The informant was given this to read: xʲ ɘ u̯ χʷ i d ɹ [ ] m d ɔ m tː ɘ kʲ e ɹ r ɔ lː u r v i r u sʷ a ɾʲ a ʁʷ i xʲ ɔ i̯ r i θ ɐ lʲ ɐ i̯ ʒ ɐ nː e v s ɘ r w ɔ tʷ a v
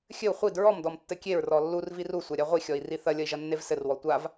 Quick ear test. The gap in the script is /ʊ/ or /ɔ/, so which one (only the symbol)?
ɔ